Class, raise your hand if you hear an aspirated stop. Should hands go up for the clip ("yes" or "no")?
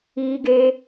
no